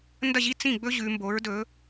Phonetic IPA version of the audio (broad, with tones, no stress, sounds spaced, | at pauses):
n d ɐ˥˨ ʑ i˥ t͡s ĩ˥˨ ɡ͡b ɵ˥ ʑ ʉ˩˧ m b o˩˥ ɹ d ɵ˩˥